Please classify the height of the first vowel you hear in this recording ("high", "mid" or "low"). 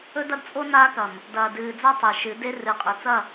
mid